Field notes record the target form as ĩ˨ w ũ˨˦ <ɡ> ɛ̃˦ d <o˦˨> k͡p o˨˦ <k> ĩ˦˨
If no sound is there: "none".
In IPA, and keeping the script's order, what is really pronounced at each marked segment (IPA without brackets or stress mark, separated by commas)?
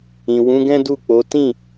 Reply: ɡ, u˦˨, t